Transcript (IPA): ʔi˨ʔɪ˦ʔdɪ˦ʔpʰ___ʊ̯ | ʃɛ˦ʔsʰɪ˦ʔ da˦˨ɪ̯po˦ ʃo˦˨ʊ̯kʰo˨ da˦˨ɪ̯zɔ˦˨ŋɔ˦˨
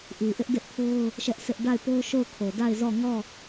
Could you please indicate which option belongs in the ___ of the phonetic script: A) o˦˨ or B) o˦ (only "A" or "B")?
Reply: B